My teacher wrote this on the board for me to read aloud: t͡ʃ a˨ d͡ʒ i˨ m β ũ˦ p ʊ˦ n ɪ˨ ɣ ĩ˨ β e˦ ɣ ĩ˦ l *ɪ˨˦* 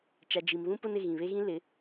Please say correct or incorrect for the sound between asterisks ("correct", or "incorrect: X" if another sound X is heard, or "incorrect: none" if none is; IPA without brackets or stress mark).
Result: correct